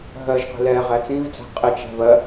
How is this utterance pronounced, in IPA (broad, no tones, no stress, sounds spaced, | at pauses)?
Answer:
ɦ ɜ ʒ q i̤ l ɛ ʁ æ t͡s ĩ v d͡z æ̤ qʼ ɪ t͡ʃ æ̤ v ɜ